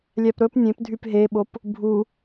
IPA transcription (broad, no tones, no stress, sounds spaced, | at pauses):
lʲ æ p ɾ ɵ p nʲ ẽ p dʱ y p ɦ e ɓ o p | bʱ u